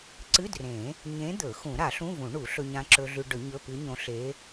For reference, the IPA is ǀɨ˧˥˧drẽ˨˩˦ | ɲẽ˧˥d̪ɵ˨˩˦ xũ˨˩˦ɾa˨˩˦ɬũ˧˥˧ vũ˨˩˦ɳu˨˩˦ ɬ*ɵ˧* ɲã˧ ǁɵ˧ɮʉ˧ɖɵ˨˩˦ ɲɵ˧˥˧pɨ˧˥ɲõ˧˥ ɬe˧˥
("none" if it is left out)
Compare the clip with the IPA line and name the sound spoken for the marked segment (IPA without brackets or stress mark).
ɵ˧